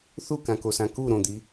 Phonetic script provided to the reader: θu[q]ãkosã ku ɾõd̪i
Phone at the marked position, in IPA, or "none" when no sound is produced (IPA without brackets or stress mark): k